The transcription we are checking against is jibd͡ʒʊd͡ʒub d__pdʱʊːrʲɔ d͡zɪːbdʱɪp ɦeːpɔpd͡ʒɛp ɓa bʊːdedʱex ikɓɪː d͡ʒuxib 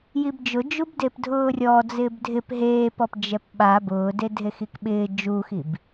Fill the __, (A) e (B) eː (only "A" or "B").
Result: A